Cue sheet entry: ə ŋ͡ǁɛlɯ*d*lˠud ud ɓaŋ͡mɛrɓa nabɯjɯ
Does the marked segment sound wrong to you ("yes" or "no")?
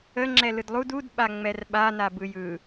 no